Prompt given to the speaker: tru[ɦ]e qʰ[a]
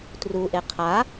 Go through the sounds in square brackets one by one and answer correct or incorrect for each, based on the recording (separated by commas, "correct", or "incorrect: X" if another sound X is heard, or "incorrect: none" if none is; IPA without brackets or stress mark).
incorrect: ʔ, correct